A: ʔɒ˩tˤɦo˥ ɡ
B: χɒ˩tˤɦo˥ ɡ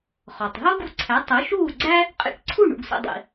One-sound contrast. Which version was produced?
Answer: B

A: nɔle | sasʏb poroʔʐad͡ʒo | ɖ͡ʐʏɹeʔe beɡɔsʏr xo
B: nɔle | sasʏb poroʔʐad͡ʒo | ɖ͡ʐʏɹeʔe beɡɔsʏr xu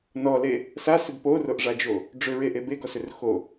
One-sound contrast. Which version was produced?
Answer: A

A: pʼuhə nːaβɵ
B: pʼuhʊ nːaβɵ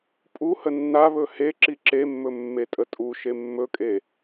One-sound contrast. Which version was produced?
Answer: A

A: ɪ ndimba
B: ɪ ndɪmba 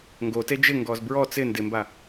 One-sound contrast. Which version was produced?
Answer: B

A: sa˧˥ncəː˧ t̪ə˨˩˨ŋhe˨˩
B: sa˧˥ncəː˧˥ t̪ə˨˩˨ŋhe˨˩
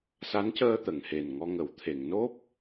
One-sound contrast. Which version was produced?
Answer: A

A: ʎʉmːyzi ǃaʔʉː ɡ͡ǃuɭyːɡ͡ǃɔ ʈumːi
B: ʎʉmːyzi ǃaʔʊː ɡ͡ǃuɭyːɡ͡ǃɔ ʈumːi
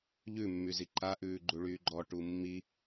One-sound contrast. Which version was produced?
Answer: A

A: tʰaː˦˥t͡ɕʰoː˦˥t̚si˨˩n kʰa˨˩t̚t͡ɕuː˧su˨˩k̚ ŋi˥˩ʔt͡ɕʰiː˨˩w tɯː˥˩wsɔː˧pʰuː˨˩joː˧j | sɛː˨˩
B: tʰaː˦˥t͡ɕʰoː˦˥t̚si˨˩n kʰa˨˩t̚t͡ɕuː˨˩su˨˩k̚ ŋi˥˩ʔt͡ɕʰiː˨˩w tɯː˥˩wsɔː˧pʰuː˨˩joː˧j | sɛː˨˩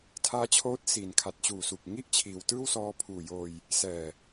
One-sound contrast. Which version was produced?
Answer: B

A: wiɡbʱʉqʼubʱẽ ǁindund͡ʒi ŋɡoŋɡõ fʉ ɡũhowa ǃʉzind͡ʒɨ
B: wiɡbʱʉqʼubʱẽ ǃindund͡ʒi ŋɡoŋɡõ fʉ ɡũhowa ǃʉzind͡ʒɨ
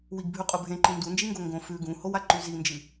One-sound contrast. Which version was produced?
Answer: B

